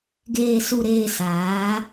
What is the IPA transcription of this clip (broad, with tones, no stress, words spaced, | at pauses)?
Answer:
ɡeː˨su˨ɾeː˨ saː˨˦